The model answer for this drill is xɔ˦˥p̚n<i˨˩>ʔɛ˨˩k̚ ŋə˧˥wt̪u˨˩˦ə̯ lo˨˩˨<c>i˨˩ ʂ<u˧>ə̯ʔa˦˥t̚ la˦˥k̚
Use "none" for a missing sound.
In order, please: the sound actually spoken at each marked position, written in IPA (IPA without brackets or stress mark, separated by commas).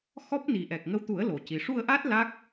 i˨˩, c, u˧